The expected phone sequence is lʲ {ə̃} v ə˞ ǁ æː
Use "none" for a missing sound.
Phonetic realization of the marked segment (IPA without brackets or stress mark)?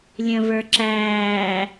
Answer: ə̃